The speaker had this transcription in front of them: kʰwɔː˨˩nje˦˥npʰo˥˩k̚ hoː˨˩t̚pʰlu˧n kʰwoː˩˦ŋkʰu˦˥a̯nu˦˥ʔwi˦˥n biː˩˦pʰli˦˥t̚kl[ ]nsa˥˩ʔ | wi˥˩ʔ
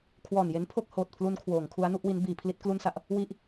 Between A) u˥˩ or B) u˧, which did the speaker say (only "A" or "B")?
A